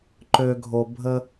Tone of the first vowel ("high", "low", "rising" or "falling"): low